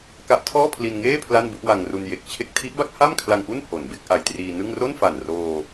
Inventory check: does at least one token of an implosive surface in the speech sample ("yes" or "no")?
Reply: no